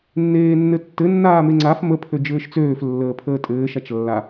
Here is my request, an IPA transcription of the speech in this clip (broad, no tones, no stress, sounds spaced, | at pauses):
nː eː nː ɘ tː ɘ nː aː m e ŋ͡ǀ a f m ə pʰ ø d͡ʒ ɘː ʃ t͡s øː f lː əː pʰ əː tʼ ɘː ʃ a t͡ʃ lː a